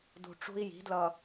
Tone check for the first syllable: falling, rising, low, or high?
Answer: low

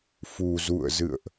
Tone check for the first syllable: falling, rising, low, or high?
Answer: low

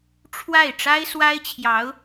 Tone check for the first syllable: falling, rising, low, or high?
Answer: falling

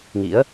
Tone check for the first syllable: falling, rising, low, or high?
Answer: rising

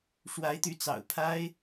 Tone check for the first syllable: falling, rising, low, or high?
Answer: rising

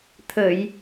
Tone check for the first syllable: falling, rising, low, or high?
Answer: low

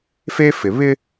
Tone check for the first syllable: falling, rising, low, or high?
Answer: high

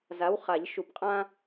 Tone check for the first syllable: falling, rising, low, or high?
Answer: rising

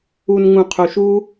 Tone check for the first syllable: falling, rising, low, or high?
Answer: low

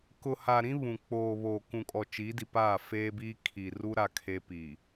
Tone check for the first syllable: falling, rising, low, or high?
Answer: low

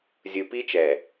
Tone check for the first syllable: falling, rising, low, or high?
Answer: low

